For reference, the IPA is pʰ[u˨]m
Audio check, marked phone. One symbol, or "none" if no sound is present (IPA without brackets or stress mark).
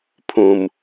ũ˨